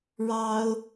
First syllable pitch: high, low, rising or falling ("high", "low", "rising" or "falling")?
high